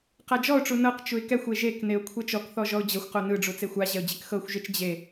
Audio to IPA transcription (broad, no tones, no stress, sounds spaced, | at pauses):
q a d͡ʒ ɔ ʊ̯ ʈ͡ʂ u n ɤ q t͡ʃ u ɪ̯ k ɛ xʷ e ʒ e k n e ʊ̯ kʷʰ ɛ t͡ʃ ɔ k θ ɔ ʒ ɔ ʊ̯ d͡ʑ ɤ xʷ q o n ɯ ɖ͡ʐ u t͡s e xʷ a ʑ ɛ ʊ̯ d͡ʑ e k x ɤ xʷ ʒ e t͡ʃ d͡ʑ e